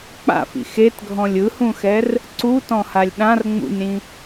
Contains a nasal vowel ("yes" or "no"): yes